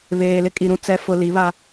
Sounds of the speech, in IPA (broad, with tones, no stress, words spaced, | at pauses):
βeː˨lɪ˦kʼi˨ ɾũ˨t͡sɛ˨fʊ˨ li˨˦βa˦